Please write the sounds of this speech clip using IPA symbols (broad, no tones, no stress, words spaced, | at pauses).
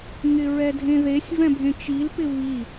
ŋɪɹɛdʱẽðesʲ vɛ̃bʱẽt͡ʃil pɪvi